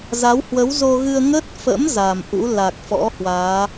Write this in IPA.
z a˨˦ w h w ə˨˦ w z o˧ ɣ ɨ˧ ə̯ ŋ ə˦˥ t̚ f ə̰˧˥ m z a˨˩ m ʔ ṵ˧˥ l a˨˩ k̚ f ɔ̰˧˥ h w aː˨˦

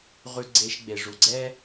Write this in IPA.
ʁ ʉ˧ ɡ͡ǀ e˧ ʃ ɡ͡b e˨ ʐ u˨ ɡ͡ǀ ɛ˦

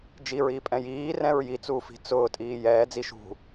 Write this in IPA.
d͡ʒ i ɹ iː pʼ ɛ̃ j iː r ɛ̃ ɹ j i t͡s uː f i̤ t͡s ʊː tʼ iː j ɛː d͡z i ʃ ṳ

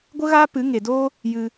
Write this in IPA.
ɡʷ ə˦ ɣ aː˦ p ɨ˨˦ ŋ e˨ d oː˦ | j ɨ˧

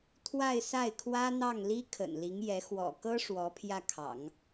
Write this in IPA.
t̪ʰ w a˥˧ ɪ̯ s a˥˩ ɪ̯ kʰ w ä˥ n̪ ɑ˥˩ ŋ l i˥ kʰ ə̰˨˩ n l i˧˥ ŋ j ɛ˧˥ x w ɔ̰˨˩ k ɤ˥ ʂ w ɔ˧˥ pʰ j ä˥˩ kʰ ɑ̰˨˩˦ ŋ

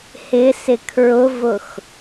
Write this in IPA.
h ɪ s ɪ kʰ ɹ ʊ v ʊ x

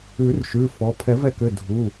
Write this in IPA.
ʉ˨˩˦ r ʃ ʉ˩˧˩ f ɔ˩˧˩ pʰ ɛ˨˩˦ v ɛ˧˩ k ʏ˩˧˩ dʱ u˩˧˩

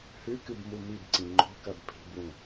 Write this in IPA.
h ʉ k ɨ b m u m i b ǀ ĩ ŋ͡ǃ o̤ k ɐ b pʰ i̤ b w ũ

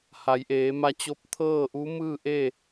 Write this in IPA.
h a˩˧ j ʔ eː˩˧ m a˧ t͡ɕ o˧˥ p̚ t̪ʰ ɤː˥˨ ʔ u˧˥ m ɯː˥˨ ʔ e˥˨

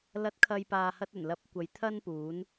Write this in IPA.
l ɐ˨˥ t̚ kʰ ɐ˨ j p aː˨ h ɐ˧ t̚ ɵ˨˩ n l ɐ˨˥ p̚ kʷ ɐ˨˧ j t̪ʰ ɐ˥ n p uː˨˥ n

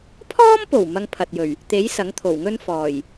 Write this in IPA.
pʰ ɔː˥ m p o˨˩ w m ɐ˧ ŋ pʰ ɐ˨ t̚ j ɵ˨˩ ɥ | t̪ e˨˥ j s ɐ˨˥ ŋ t̪ʰ o˨˩ w ŋ ɵ˥ n f ɔː˨˩ j

